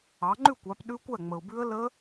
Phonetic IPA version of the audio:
ɑ˨˦ ŋ͡ǃ ʉ˥˨ kʷ ɑ˨˦ p ɗ ʉ˦˥ kʷ æ˥˨ ŋ͡m ə˨ ʊ̯ b ʉ˦˥ ə̯ l ə˦˥

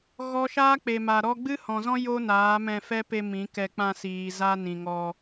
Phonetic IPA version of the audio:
ɣ ɔ˦ ʃ aː˦ k͡p e˨ m a˨ ɾ ɔ˧ ɡ͡b ɨ˦ h ɔ̃˨ z ɔ̃˦ j o˦ n aː˨˦ m ɛ̃˧ f ɛ˦ p e˧ m ĩ˨˦ k ɛ˧ k͡p ã˧ s iː˨ z a˦ n ĩ˨ ŋ ɔ˧

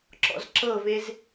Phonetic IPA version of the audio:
ǁ ɔ̰ z ǁ ɤ v e z

